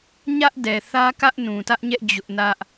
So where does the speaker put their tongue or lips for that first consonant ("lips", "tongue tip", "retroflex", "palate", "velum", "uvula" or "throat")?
palate